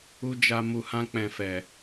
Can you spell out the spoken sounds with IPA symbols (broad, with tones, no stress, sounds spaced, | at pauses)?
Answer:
u˨ d͡ʒ a˨ m u˨ h ã˧ k͡p ɛ̃˨ f ɛ˨